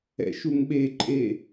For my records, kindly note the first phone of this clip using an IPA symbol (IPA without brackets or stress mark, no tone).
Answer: ɛ̰